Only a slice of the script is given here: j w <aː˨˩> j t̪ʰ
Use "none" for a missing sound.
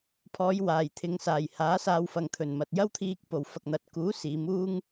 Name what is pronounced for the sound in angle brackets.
aː˨˩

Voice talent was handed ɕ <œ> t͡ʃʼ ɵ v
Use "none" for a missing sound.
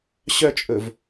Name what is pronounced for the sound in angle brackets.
œ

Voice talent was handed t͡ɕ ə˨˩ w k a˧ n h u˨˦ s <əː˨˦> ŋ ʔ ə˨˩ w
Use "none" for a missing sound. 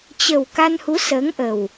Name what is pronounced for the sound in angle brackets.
əː˨˦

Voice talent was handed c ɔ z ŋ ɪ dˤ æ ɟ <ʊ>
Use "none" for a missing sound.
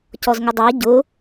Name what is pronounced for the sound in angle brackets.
ʊ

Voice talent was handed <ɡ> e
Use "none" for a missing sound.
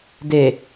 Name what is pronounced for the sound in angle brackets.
d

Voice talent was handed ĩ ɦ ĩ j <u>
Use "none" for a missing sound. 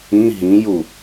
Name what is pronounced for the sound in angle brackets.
u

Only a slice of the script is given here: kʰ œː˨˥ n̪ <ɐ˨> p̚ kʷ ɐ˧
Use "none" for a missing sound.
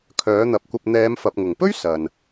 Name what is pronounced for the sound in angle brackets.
ɐ˨˥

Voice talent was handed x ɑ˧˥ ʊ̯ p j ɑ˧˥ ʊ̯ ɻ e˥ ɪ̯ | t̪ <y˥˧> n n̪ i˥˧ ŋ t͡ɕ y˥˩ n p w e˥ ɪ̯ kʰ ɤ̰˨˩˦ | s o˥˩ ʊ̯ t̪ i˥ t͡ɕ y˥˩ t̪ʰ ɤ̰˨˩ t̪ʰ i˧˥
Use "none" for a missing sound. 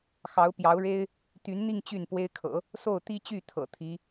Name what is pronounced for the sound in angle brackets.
y˧˥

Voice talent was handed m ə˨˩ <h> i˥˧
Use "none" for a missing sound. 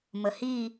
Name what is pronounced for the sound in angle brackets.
h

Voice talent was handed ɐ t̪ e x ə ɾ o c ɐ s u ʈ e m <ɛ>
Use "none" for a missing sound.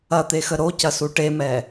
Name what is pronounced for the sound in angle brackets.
ɛ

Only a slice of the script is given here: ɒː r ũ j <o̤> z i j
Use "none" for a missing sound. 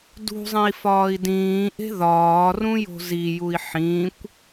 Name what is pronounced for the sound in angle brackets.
o̤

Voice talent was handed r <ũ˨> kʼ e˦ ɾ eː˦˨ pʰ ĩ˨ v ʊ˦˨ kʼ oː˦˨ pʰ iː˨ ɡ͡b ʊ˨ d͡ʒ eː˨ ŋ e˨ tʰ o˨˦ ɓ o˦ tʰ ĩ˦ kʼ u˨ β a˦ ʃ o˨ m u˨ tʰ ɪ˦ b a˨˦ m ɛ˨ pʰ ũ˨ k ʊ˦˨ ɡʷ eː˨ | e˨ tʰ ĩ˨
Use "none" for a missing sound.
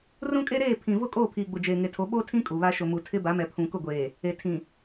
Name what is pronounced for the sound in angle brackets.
ũ˦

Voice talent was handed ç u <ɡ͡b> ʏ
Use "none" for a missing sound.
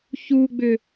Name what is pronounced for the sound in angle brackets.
ɡ͡b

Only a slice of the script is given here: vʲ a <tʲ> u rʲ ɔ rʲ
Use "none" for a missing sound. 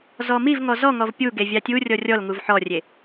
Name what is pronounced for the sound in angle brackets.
tʲ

